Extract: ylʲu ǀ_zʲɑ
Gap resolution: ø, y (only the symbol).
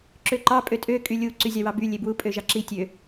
y